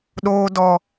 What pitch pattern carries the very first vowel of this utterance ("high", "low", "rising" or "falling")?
high